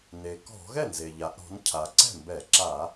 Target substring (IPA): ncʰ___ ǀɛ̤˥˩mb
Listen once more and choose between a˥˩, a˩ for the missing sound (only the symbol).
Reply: a˩